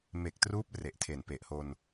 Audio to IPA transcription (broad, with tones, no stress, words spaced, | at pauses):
me˨˩k̚truː˦˥p̚ re˨˩ʔtʰe˨˩npe˨˩ʔho˧n